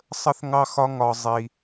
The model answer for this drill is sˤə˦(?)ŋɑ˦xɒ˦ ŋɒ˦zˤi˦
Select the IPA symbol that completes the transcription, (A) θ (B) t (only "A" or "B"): A